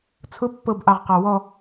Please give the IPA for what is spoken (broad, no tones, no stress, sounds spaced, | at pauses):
t͡sʰ ʊ pː ɤ b ʔ ɑ ʁ q ɑ w ɔ